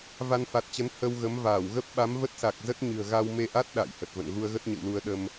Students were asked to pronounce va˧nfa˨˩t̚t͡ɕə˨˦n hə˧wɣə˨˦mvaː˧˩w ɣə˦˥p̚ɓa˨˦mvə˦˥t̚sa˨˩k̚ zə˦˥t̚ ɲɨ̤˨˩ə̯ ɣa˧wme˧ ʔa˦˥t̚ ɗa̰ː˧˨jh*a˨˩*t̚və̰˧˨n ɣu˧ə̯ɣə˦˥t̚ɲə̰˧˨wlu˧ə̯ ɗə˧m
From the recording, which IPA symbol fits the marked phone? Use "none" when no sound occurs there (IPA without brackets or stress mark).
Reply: ə˨˩